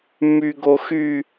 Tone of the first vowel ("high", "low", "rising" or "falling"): high